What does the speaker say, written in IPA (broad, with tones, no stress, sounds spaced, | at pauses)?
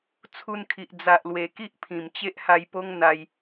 t͡sʰ u˧ n kʰ i˨ ʔ d͡z a˨ ʔ l w e˨˩ k i˦ ʔ pʰ ĩ˨˩ m t͡ɕ e˦ ʔ h a˧ j p o˦ ŋ n̪ a˦ j